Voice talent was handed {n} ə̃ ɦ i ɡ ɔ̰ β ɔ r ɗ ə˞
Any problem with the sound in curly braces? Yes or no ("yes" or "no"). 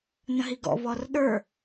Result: no